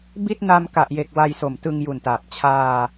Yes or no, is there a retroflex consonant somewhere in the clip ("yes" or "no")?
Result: no